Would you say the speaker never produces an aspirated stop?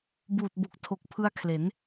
no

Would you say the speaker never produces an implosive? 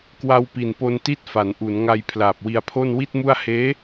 yes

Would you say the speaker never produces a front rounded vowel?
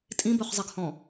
no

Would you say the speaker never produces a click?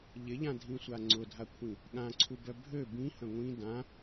no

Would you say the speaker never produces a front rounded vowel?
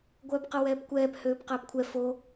no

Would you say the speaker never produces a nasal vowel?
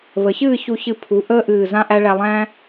no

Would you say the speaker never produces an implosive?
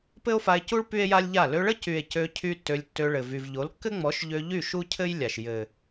yes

